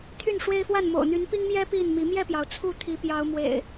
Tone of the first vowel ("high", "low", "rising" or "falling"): falling